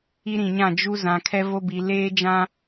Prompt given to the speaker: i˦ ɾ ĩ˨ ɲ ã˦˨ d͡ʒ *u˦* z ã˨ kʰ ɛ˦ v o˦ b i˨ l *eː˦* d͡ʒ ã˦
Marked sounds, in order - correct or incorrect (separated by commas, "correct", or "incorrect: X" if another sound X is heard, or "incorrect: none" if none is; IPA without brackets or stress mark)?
correct, correct